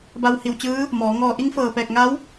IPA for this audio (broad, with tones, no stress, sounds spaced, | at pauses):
b a˧ w h i˧˩ w t͡ɕ ɯː˧˥ | m ɔː˩˧ ŋ ɔː˧ ʔ i˧˥ ŋ f ɤː˧˩ p ɛː˧˩ k̚ ŋ a˧˥ w